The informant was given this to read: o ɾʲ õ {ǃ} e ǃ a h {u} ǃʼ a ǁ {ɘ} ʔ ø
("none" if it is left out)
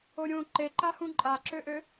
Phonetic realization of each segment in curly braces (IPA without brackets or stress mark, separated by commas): ǃ, ũ, ø